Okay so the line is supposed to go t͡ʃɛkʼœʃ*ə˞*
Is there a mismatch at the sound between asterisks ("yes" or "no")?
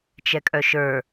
no